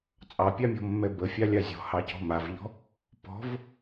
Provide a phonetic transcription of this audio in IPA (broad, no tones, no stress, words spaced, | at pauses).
t͡sʼɑpʲamʲɔ̤mːɛ bəfʲalʲa zʲɔ̤hɑcɔ̤ mavʎɔ̤ | pɔ̤v